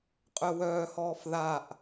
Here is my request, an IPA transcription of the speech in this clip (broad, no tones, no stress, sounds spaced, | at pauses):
qʼ œ w œː h ɔː f ð a ʔ